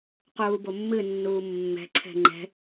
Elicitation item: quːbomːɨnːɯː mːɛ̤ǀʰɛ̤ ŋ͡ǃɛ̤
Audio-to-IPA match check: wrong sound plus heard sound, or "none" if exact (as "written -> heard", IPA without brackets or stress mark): ɯː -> uː